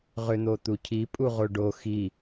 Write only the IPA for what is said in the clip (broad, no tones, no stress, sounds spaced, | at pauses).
ʁ ʏ n̪ o t̪ u cʰ i pʼ u ʁ o ɖ o x i